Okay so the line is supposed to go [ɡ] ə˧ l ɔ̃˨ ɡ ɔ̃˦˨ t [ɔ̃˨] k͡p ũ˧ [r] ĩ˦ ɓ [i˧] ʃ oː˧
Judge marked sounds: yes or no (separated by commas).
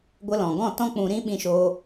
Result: no, no, no, no